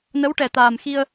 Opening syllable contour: rising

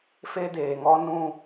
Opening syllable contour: high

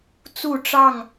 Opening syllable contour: falling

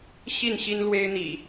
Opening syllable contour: falling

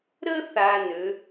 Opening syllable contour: high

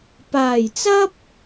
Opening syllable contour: low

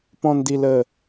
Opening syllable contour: low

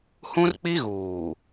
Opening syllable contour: high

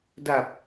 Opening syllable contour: low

